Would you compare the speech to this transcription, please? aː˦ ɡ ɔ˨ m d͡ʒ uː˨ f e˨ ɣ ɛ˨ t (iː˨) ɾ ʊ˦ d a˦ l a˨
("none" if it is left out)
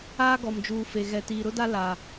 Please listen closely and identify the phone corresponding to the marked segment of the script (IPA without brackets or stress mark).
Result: iː˨